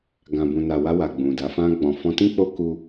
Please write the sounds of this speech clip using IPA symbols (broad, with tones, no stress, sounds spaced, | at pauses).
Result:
ɡ ã˨ b ũ˨ n a˨ w a˧ w a˨ ɡ͡b ũ˨ d a˨˦ f ã˧ ɡ͡b ɔ̃˨ f ɔ̃˧ t ĩ˦ k͡p o˦ k u˦